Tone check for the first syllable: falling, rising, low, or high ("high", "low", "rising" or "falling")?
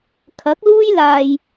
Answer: rising